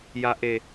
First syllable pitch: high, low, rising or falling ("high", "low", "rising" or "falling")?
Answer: low